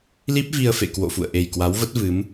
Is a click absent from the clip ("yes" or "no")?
yes